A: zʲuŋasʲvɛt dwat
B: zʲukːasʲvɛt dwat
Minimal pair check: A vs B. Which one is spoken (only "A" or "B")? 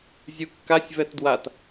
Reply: B